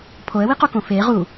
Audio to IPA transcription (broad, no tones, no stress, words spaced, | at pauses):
pʰoə̯wiqokõ fe ʁu